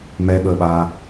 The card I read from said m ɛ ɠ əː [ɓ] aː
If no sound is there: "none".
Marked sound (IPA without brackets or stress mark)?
ɓ